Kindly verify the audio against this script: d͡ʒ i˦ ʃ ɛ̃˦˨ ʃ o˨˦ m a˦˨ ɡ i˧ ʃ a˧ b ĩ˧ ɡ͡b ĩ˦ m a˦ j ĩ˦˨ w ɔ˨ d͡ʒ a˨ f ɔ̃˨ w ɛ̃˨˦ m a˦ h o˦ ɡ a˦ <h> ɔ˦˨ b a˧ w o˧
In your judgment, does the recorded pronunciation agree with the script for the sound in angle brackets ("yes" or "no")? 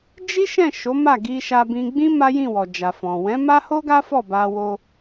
no